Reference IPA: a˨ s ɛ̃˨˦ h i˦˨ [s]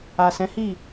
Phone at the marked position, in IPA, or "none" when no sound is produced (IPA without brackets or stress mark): none